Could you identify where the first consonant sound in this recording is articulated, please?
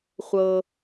uvular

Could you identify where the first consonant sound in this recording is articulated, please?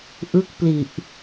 glottal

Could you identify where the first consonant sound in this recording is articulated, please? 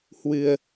glottal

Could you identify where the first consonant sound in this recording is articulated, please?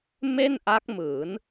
labial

